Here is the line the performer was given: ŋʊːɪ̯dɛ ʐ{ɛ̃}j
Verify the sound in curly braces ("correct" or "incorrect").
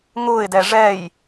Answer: incorrect